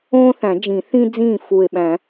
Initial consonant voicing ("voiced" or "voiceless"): voiceless